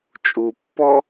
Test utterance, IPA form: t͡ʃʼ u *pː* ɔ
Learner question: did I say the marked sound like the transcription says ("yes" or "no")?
yes